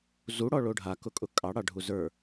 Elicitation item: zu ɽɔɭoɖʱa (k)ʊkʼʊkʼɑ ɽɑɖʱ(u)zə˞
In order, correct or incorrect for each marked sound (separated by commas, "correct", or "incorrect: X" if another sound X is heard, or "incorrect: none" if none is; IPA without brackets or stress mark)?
correct, correct